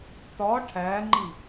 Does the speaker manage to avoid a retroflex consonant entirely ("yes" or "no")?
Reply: no